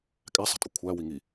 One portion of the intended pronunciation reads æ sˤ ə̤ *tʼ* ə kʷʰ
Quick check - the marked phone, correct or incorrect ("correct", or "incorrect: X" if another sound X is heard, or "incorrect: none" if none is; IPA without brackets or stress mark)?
correct